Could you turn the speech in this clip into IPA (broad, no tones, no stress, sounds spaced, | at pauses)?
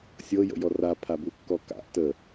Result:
sʲ ɤ j ə̰ j ɔ r a pʰ a b u kː ɔ k a̰ ʔ t ə